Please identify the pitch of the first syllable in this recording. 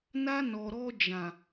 high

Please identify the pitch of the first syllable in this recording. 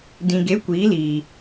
low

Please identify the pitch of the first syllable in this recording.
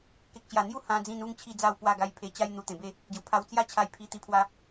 low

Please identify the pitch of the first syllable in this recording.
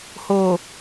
low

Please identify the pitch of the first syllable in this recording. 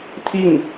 falling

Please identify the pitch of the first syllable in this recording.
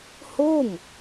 falling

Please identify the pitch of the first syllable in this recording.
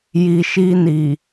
low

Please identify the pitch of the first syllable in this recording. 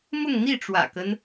falling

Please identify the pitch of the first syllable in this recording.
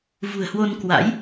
low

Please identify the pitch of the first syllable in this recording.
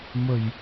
low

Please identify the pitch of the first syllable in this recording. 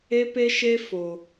high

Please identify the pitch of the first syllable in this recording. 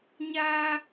high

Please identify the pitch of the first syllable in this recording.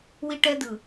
high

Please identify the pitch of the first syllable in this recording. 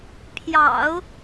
low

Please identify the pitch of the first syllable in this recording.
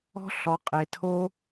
high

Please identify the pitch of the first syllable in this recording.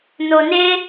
low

